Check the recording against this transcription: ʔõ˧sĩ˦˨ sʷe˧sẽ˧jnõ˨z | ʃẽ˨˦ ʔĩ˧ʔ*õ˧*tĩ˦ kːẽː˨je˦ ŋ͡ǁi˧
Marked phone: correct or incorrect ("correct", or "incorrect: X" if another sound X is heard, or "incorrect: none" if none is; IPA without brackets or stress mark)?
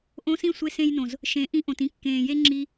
incorrect: õ˨